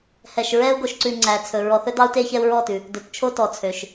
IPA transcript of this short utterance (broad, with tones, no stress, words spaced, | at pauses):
hɛ˨ʃɹɛ˦u̯ ɡo˨ʃǀʉ˨ ŋ͡ǀæ˨t͡sʰɵ˨ ɹɔ˨θɵ˦dɑ˦u̯te˦ çɛ˦u̯ɹɔ˦˨tʉ˨ | dɵ˨tt͡ʃʰo˦ tɔ˨t͡sʰø˨ʃ